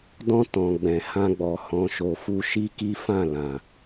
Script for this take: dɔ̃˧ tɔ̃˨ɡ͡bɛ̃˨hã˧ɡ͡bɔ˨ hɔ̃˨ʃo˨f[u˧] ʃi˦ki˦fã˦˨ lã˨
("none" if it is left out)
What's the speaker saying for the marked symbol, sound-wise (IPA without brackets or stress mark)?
u˧